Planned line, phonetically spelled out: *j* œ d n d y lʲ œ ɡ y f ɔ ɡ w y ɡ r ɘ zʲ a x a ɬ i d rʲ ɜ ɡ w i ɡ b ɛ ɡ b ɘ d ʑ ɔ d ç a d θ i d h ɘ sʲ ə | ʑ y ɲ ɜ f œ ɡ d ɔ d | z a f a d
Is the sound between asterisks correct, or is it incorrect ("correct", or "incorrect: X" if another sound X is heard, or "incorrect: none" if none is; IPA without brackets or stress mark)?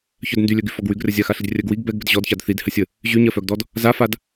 incorrect: ç